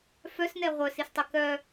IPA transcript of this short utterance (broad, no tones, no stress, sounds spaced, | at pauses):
f œ s n ɛ ʁʷ œ s i s tˤ i k œ